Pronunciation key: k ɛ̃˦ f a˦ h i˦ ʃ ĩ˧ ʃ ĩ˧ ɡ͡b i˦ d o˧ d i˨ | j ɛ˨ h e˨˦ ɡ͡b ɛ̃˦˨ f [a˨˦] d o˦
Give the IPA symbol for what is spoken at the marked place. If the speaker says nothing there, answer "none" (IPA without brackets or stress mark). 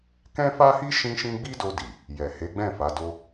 a˨˦